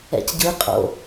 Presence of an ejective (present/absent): present